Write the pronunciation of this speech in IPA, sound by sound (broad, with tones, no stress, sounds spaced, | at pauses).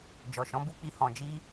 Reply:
d͡ʒ ɔ˨ ʃ ɔ̃˨˦ b u˦ k͡p i˧ h ɔ̃˨ d͡ʒ i˧